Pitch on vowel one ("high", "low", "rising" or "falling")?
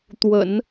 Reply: low